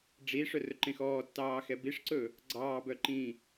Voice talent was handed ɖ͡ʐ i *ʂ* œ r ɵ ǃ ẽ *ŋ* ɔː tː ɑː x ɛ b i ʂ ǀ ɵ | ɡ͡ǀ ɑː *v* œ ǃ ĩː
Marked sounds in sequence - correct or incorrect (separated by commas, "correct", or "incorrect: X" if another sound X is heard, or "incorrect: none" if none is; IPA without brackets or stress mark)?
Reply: correct, incorrect: x, incorrect: b